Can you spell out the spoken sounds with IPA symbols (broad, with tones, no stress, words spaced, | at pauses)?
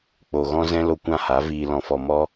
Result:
k͡po˨ ɣɔ̃˧zɛ̃˧ lo˧kʷã˦˨ha˨˦ viː˨lɔ̃˨ fɔ˨ mɔ˧